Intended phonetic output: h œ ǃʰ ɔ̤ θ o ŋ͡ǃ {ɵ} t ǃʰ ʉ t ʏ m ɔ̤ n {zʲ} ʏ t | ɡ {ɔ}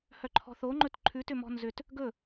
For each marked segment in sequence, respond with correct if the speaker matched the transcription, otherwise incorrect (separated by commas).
correct, incorrect, incorrect